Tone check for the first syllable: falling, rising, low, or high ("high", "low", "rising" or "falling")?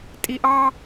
low